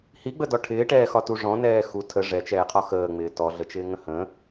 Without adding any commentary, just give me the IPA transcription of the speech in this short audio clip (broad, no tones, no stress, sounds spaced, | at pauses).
h i ɡ͡b ə d ɔ ʈʰ ɪː ʈ ɛː x ɒ t u ʐ ɔ̃ n ɛː x u tʰ ə ʐ ɛ t͡ʃ ɛː qʰ ɒ x əː ŋ͡m ɪː t ɔ ɮ ə t͡ʃ ɪː ŋ ə̃ h ə̃